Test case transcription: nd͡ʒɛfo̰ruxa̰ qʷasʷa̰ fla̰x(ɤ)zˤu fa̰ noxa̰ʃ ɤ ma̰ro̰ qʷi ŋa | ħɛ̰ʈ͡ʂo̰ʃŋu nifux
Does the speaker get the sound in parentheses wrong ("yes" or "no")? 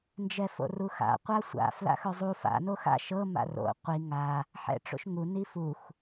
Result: yes